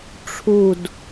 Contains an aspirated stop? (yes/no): yes